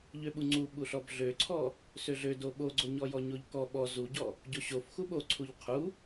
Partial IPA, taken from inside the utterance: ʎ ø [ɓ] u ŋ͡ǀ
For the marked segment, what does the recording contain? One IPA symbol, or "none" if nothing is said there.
ɓ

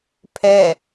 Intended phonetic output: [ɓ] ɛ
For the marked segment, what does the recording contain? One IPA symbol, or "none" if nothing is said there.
pʰ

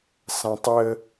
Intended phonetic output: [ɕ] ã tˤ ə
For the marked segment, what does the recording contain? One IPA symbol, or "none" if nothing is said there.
s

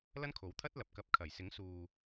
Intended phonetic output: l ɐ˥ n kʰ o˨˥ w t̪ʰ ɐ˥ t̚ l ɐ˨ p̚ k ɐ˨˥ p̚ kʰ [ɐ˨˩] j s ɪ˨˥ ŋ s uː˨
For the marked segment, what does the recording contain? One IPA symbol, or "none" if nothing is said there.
ɐ˨˩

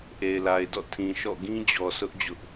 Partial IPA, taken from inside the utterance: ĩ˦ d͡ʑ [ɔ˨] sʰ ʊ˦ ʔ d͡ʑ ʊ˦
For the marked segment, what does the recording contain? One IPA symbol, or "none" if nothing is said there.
ɔ˨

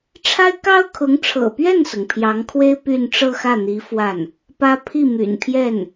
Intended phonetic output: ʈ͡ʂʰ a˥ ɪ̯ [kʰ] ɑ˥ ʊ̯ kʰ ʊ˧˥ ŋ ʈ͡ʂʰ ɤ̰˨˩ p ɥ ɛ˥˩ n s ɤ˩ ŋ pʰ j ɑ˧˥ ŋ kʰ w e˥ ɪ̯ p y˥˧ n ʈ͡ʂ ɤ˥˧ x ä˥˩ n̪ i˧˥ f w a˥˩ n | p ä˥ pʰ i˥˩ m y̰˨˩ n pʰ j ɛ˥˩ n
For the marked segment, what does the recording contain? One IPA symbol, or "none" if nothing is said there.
k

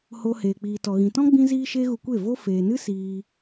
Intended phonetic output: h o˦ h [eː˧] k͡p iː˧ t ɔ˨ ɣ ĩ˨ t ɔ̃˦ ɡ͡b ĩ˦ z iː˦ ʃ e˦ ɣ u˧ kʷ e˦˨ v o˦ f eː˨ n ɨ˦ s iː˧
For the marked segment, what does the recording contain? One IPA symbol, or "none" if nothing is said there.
eː˧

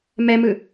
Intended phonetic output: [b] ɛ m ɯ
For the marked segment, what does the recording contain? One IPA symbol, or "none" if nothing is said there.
m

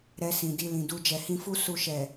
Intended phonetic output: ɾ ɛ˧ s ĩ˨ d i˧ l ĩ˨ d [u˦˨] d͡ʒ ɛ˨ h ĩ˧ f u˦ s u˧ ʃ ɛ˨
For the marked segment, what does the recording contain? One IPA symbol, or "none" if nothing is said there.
u˧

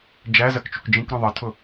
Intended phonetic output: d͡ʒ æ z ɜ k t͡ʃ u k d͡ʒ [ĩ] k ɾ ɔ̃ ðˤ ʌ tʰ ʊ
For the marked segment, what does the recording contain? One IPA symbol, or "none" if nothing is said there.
ĩ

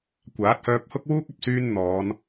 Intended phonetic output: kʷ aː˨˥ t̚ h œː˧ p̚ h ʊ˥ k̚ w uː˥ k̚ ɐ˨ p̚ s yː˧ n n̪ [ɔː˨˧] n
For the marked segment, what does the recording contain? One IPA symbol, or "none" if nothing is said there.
ɔː˨˧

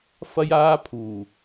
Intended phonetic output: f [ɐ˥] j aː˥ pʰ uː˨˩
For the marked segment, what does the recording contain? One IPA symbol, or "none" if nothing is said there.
ɐ˥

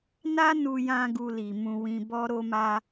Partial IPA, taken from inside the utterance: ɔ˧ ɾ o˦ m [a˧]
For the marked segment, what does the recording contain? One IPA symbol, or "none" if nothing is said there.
a˧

